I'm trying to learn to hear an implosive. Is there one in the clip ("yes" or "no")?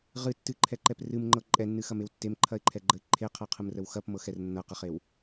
no